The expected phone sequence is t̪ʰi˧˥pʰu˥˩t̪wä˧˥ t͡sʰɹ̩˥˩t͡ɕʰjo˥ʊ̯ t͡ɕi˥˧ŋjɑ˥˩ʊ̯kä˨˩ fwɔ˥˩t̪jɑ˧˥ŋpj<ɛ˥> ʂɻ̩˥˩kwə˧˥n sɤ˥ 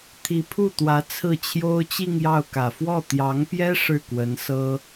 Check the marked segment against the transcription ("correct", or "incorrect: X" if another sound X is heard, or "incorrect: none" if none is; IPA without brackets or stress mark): correct